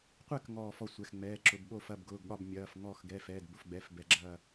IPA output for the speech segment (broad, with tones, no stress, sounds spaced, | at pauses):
qʷ ɛ˦˨ k ŋ ɔː˦˨ f ɔ˦˨ sʷ ɛ˩˧˩ x ŋ͡m ɛː˩˧˩ ǁ ʊ˩˧˩ b ɓ oː˦˨ f ɐ˩˧˩ b ɡ ʊː˩˧˩ ɡ ɠ ɒ˦˨ b mʲ ɐː˩˧˩ f ŋ ɔː˦˨ x ɡ ɛ˩˧˩ f ɛː˩˧˩ d b ʊ˩˧˩ f ɡ͡b ɛ˩˧˩ f b ɛ˩˧˩ ɡ͡ǁ ɐː˦˨